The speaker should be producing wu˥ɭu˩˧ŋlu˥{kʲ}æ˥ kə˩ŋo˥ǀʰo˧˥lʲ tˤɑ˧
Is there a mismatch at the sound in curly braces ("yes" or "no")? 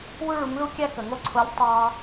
no